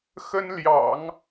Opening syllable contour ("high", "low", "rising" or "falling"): high